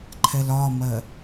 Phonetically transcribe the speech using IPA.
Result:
ǃʰ ɛ l ɒ m ɜ

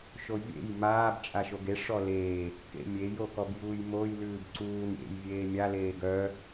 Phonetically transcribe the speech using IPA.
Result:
ʃ o vʲ ḛ j m aː b t͡ʃʼ a ʃ o ɡ e ʂ ɔ l eː | k ḛ mʲ e j o k ɔ b j uː j m o j l ʉː b ǀ uː n ɾʲ ḛ j vʲ eː mʲ a l eː ɡ œ

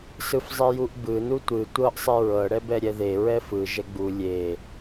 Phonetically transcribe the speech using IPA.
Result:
s ɯ f zˤ i j u ʔ b ɯ n u tʷ ɯ tʷ ɤ ʔ sˤ e ɹ ɤ ɽ ɛ b ɛ ɾʲ ɛ ð e ɹ ɛ f ɯ ʒ ɛ ɡ͡b u lʲ e

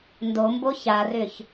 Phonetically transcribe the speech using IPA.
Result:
n d o m b o ç a r ʏ ç

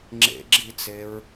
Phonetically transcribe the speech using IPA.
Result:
ŋ͡ǁ ḛ ɡ͡ǁ i t͡s e ɹ

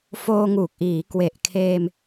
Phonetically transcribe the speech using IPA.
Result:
f oː˧ ŋ uː˨˩ k̚ ʔ iː˩˦ k w e˨˩ ʔ kʰ eː˧ m

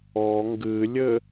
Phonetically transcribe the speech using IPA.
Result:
ɔ ŋ ɡ ɨ lʲ ɘ

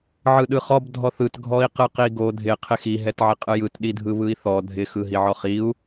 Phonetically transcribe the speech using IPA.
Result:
ʕ ɯ ɗ ɯ χ ɔ b dʱ ɔ θ ɯ t ɡʱ ɔ i̯ q ɯ q i ɡ o dʱ ɪ qʰ ɪ x i ɦ ɛ t ʕ ɪ qʼ ɯ j ɯ t ɗ i dʱ ɯ β ɯ i̯ θ ɔ dʱ ɪ x ɯ ɦ i ʕ ɔ χ i u̯

